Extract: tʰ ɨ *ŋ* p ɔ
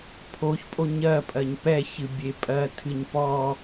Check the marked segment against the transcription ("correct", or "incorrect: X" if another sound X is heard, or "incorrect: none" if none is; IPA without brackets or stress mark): incorrect: ɲ